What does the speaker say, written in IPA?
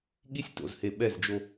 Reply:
ɠ i˦ sʲ t o̰˨ z h e˨ ɓ ɛ˦˨ z d͡ʒ o˦

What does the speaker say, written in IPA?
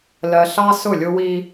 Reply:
l ɜ˨ ɬ ɑ˦ s ʊ˦˨ lʲ ʊ˦ w i˦

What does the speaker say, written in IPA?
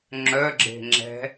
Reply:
ŋ͡ǁ œ ɡ͡ǁ e̤ ŋ͡ǁ ɛ̤

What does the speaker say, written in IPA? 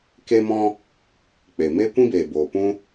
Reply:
k e˦ m ɔ̃˦ | k͡p e˨ m eː˦ kʷ ĩ˦ b eː˨ b oː˨ p ũ˦

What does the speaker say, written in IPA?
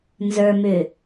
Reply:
n z ə˞ m ʏ

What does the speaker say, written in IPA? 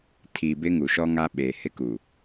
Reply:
tʰ i˨ b ɪ˦ ŋ u˨ ʃ ɔ˦ ŋ a˦ ɓ eː˨ h ɪ˦ k u˨

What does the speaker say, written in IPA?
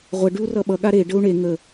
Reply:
ʁʷ ə ɖ ʉ u̯ r ʌ ɓ ʌ ɠ a ɾ e ɖ ə u̯ ɳ e ŋ ə

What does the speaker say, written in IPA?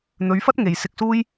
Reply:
n̪ ɵ˨˧ ɥ f ɐ˥ t̚ ŋ e˨ j s ɪ˧ k̚ s uː˥ j

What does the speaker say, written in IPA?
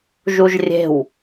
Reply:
ʒ u ʒ rʲ e̤ w

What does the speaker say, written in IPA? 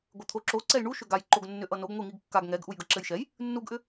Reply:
ɡʷ ɘ t̪ʰ o ǁ o ǀ ɛ j ɳ u ʃ ʏ ɡ a j ǃ o ɡ nː ʏ ʔ ʌ n o ɡ ŋʷ i ŋ i ɡ kː a ɡ ŋ ɛ ɡ ʔ u j ɡ ʌ ǁ ɘ j ʃ ɛ j | nː u ɡ ʔ ʏ

